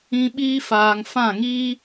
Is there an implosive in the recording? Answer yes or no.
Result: yes